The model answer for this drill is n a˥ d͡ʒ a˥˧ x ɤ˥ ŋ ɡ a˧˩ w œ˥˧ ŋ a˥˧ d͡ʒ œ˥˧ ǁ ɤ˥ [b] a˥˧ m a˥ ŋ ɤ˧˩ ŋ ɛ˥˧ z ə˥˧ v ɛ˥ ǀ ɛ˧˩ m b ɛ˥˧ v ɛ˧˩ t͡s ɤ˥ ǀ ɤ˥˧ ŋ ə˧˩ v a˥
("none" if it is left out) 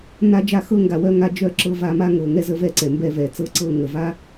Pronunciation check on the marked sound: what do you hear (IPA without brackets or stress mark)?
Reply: v